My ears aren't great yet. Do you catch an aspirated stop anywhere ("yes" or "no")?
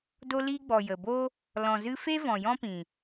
no